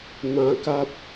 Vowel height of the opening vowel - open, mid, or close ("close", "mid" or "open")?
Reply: open